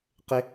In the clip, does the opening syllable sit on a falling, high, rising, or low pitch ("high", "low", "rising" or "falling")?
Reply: high